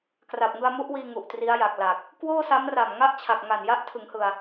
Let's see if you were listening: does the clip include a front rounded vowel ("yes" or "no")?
no